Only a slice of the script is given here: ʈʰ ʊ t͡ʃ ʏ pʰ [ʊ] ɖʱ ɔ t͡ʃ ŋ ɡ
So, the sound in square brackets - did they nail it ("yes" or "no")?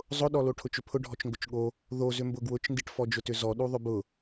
yes